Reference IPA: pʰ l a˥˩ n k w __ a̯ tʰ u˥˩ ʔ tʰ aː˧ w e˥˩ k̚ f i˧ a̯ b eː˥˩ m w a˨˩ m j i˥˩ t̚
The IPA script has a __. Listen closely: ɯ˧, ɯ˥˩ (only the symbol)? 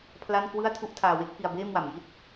ɯ˥˩